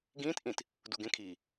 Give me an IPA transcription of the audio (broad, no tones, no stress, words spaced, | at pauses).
ɡĩːt ʔĩt | duɡẽ kʰiː